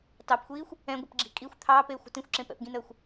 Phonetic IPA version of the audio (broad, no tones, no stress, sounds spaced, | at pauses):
t ɑ p xʷ iː xʷ | ɛ̃ ɡʷ ɪ p ɡ͡ǁ i̤ kʼ i xʷ t̪ʰ ɑː p eː xʷ ə̤ t ĩ xʷ ǁ ẽ p ɛ̰ p ɡ ĩ n əː xʷ